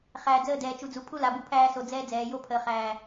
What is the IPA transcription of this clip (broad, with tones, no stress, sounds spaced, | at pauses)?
χ æː˨ d͡z əː˦˨ d ɛː˨ t͡ʃ u˨ d͡z u˨ pʰ u˦ l a˨ b u˦ pʰ æː˦ s o˨ d͡z ɛː˦ d͡z ɛː˨ j o˦ pʰ əː˨ χ æː˨